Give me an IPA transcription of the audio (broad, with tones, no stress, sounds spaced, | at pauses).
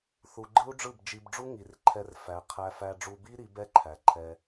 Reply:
θ u˧ ɡ͡ǃ ɯ˦ u̯ ɖ͡ʐ ɯ˦˨ b d͡ʒ i˧ b ɖ͡ʐ u˦ ŋ i˨ r ǃʰ ɛ˧ r f æ˨ qʰ æ˧ f æ˧ ɖ͡ʐ u˧ b i˦ ɾ i˨˦ b ɛ˦ ǃʰ æ˨ ǃʰ ɛ˧